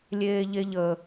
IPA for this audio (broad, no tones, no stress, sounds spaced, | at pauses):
lʲ eː ʎ e ʎ ə